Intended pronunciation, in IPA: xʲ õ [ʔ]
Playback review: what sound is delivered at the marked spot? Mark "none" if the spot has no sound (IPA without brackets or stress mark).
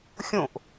ʔ